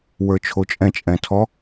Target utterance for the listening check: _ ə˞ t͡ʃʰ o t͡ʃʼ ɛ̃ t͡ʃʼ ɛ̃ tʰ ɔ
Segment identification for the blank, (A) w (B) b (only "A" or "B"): A